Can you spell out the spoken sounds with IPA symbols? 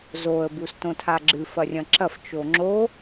z o ə̯ b u s t õ tʰ a ɡ͡ǁ ɨ f ɐ rʲ ɐ̃ ǁ ɐ f t͡ʃ o ŋ͡ǁ o

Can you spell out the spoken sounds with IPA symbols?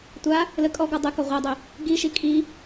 tʷ a | l ə kʼ ɔ ɡ ɔ dˤ ø k ɔ ʁʷ a dˤ ø | ɡ i ʃ i kʼ i

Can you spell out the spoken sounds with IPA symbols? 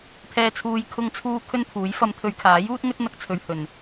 t̪ʰ ɛː˨ t͡sʰ uː˨ j kʰ ʊ˧ ŋ t͡sʰ uː˧ kʰ ɵ˥ n pʰ uː˨˥ j f ɐ˨˧ m t̪ʰ ɵ˨˧ ɥ kʰ aː˨˥ j uː˥ t̚ ŋ ɵ˥ t̚ n̪ ɐ˧ k̚ t͡sʰ ɵ˨ ɥ h ɵ˨˩ n

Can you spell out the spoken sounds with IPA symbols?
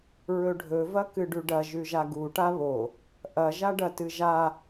ɹ ɵ ɖʱ ɵ v ɐ k ɨ ɖ ʉ ɖ ɐ ʒ ʉ ʒ a ɡ u ʈ a β o | ʔ ɐ ʒ a ɖ ɐ t ɨ ʒ a

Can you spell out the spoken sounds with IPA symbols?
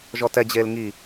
ʒ ɔ t ɛ d͡ʑ eː l ŋ i

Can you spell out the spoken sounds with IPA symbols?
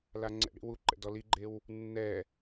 l a ŋ͡ǀ ɛ̰ ɽ ḭ w u ǃ ɛ̰ d ɔ l i ɡ͡ǃ e w | nː ɛ

